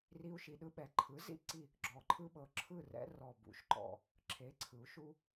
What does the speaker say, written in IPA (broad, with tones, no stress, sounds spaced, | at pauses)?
r i˦ u̯ ʃ i˩˧ ɗ ɯ˦ ɓ ɛ˩˥ ǃʰ ɯ˩˥ z ḭ˥˩ ǀ i˥˩ | ɡ͡ǁ ɔ˨˩ ǃʰ ɯ˦ ɓ ɤ˩˧ ǁʰ ɯ˥˩ r ɛ̰˦ r ɔ˨˩ b ṵ˩˧ ʃ ǃ ɔ̰˨˩ | ǁʰ e˩˥ ǀʰ ɯ˩˧ u̯ ʃ u˦